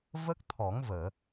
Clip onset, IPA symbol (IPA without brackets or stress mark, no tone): v